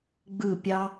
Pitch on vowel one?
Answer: falling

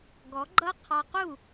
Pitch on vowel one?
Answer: rising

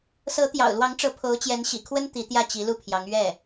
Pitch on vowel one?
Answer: rising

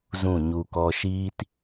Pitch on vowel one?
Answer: falling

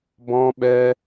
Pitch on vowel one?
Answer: high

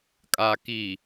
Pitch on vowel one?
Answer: low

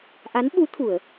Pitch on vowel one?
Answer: rising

